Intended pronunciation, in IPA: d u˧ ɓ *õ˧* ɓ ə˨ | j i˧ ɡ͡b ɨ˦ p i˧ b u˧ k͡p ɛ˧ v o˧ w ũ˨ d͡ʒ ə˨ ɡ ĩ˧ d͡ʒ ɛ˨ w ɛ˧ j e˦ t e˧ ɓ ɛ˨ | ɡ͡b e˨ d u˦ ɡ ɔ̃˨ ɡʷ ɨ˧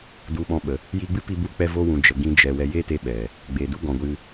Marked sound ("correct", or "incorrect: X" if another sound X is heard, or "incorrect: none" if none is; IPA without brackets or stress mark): incorrect: ɔ̃˧